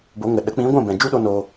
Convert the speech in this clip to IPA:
bo˨˦ŋə˨ ɗə˨˦k͡pĩ˨˦ɡʷɛ̃˦˨ bɛ̃˨ d͡ʒu˦ɗo˧ no˧

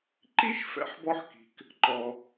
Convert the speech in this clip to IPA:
ǃi˥ʃ fɛ̰˧ħbɔ˧ħki̤˩k | ǃɔ˩

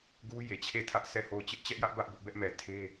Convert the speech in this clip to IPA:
ɡu˦ je˨t͡ɕʰe˦˨tʰä˦ʔ sʰɛ˦˨ho˦˨ʊ̯ t͡ɕɪ˦ʔt͡ɕɛ˦ʔjä˦ʔ bä˦ʔbʊ˦ʔ bɛ˦ʔmɛ˨ tʰe˦

